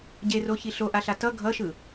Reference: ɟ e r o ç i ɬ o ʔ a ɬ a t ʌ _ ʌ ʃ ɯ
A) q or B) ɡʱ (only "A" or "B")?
B